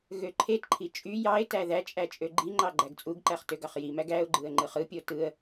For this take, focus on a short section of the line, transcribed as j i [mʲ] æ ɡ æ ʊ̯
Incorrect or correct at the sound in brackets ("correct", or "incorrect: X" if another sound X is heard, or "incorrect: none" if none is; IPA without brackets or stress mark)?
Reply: incorrect: m